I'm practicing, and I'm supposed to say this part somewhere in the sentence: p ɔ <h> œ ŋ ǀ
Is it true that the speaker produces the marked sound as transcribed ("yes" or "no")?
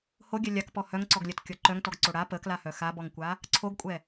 yes